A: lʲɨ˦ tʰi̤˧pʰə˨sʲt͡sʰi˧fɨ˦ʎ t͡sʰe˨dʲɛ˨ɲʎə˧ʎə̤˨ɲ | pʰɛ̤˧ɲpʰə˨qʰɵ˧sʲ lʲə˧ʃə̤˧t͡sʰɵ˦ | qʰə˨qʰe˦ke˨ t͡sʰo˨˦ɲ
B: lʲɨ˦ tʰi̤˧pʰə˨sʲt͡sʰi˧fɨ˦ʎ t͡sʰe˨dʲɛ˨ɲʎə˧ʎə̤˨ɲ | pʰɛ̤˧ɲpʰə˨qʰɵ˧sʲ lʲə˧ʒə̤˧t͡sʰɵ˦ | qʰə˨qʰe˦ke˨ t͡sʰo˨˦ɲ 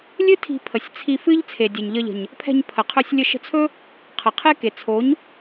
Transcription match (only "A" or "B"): A